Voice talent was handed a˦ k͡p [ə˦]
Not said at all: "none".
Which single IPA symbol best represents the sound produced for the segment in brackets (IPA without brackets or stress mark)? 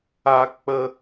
ə˦